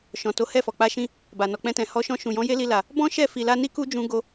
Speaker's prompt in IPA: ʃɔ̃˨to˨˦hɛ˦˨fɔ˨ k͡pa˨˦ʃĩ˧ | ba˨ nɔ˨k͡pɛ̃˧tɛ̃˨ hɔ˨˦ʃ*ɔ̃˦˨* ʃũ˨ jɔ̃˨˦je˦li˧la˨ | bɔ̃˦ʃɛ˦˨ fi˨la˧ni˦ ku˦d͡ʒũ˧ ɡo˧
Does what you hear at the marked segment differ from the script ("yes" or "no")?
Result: yes